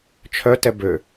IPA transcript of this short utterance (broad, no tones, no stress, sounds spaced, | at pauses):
t͡ʃʰ œ t ɛ b ø